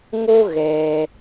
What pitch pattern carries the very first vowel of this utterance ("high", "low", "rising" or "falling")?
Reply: high